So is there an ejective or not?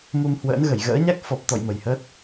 no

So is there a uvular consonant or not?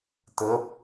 no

